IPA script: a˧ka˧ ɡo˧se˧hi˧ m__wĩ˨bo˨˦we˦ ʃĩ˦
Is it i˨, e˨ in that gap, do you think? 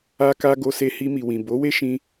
i˨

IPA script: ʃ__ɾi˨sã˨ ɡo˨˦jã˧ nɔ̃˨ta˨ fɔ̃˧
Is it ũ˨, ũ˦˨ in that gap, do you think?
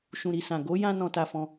ũ˨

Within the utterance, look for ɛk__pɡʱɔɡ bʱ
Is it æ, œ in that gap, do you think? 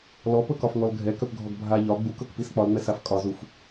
œ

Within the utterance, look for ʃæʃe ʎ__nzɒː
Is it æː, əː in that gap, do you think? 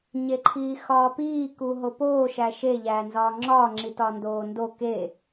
æː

